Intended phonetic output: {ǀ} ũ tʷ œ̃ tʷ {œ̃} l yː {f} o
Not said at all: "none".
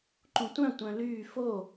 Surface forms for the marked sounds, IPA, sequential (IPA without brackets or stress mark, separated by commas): ǃ, œ̃, f